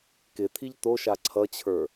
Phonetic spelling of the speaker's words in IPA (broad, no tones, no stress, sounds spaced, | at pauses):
k ɪ t̪ʰ i ʎ t̪ o ʃ a ǀʰ ʌ t͡ɕʰ ə˞